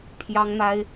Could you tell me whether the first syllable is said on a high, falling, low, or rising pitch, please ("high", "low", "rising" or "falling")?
high